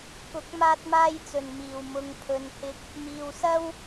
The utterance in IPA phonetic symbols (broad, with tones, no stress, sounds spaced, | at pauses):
k ʊ˨˥ k̚ m aː˧ t̚ m aː˧ j t͡s ɵ˨˩ n m iː˨˩ w m ʊ˨ ŋ pʰ ɵ˨˧ n h ɪ˧ k̚ | m iː˨ w s ɐ˥ w